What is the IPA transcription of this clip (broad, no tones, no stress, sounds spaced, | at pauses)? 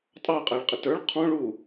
tʼ ɑ qʼ æ ɭ qʼ ɪ t ə˞ ɭ qʰ ɔ̃ ɭ u